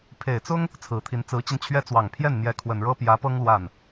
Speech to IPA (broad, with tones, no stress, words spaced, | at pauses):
pʰe˨˩ɪ̯t͡sʊ˥ŋ | t͡sʰɹ̩˨˩t̪ʰi˧˥n t͡sɹ̩˧˥t͡ɕi˧nt͡ɕʰɥɛ˥ t͡swɑ˨˩ŋpʰjɛ˥˩nn̪jɛ˧˥ kʰwə˨˩nɻɤ˥pjä˧˥pɤ˥ŋ lwa˥˩n